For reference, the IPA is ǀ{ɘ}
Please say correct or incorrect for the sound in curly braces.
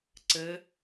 correct